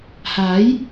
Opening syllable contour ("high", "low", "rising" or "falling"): rising